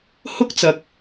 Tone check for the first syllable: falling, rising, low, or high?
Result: high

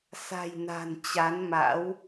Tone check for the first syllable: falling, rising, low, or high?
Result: low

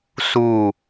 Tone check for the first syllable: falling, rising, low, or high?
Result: falling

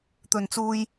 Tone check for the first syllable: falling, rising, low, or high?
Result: low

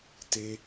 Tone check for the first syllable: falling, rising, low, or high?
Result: high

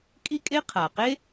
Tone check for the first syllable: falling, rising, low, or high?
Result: high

